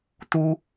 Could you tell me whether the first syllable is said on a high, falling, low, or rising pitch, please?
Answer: high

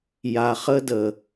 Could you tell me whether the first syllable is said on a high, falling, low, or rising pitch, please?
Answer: low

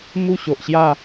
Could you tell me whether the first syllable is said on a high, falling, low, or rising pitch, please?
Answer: falling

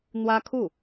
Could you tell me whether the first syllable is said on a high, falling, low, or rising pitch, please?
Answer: high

